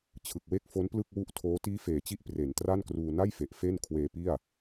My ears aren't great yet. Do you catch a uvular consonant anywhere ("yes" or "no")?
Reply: no